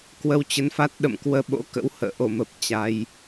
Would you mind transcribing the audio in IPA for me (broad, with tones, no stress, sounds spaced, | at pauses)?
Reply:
k w ə˧ w t͡ɕ ə˨˦ n f a˦˥ t̚ ɗ ə̰˧˨ m k w əː˧ ɓ o̰˧˥ k ə̰˧˥ w h ə̰ː˧˨ ʔ o˧˩ m ə˨˩ p̚ t͡ɕ a˧ j